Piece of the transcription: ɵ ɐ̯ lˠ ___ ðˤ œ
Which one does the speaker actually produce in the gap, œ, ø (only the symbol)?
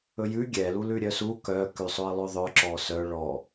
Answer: ø